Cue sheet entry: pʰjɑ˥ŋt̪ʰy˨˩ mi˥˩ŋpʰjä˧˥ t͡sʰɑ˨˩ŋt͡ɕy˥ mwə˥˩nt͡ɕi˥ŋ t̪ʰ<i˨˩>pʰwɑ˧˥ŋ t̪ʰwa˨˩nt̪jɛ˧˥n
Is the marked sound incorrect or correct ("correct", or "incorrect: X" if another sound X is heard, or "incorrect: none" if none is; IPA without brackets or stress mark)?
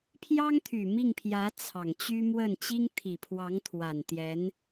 correct